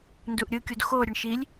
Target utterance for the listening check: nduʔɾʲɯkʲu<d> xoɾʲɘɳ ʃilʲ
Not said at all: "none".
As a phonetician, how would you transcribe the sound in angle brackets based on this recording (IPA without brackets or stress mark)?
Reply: d